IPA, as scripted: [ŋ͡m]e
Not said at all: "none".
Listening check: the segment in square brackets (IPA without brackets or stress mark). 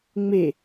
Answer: ŋ͡m